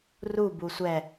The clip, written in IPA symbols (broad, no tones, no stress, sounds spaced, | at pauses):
r u b u sʷ ɛ